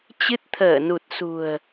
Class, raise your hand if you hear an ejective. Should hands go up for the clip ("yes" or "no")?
no